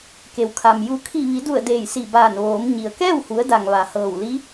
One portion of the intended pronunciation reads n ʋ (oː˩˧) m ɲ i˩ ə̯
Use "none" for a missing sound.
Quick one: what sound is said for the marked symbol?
oː˩˧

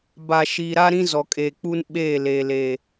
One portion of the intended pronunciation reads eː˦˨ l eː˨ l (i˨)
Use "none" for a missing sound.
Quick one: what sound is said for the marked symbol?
e˨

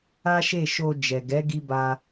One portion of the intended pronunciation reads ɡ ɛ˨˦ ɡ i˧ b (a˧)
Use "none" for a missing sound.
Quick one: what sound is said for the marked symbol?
a˧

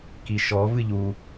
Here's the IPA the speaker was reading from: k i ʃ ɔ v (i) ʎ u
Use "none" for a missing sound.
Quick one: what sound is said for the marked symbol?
ɨ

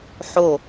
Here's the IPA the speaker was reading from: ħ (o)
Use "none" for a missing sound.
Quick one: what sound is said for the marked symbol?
o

